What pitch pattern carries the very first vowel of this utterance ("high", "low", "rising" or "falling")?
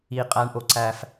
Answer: low